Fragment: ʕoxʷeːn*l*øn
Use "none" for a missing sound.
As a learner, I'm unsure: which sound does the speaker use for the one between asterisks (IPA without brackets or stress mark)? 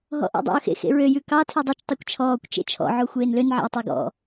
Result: l